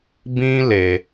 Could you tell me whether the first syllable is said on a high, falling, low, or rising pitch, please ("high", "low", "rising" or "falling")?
high